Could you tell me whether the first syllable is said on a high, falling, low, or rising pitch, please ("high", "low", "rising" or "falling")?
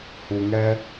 low